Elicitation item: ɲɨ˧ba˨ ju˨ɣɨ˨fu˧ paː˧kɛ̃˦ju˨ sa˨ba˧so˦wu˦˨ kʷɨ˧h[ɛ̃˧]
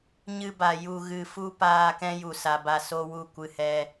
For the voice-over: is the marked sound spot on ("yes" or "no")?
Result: no